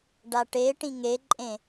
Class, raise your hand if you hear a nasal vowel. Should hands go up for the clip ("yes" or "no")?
yes